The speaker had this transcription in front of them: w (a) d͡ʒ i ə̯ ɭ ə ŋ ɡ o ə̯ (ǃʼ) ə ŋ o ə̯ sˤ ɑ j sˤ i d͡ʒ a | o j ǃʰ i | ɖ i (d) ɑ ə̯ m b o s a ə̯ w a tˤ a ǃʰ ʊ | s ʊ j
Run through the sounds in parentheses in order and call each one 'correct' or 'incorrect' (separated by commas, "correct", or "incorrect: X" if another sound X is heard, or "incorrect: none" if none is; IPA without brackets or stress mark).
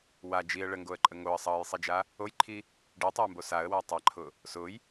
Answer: correct, correct, incorrect: tˤ